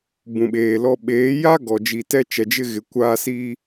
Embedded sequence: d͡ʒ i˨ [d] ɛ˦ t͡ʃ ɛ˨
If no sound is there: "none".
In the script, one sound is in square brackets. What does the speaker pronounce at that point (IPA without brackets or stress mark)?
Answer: t